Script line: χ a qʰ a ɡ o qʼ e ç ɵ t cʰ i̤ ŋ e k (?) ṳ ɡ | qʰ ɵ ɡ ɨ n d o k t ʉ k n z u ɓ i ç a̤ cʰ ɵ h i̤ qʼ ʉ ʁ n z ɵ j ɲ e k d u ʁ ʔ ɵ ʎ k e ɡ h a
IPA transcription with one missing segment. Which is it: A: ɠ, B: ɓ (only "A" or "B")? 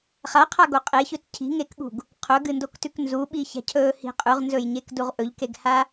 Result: A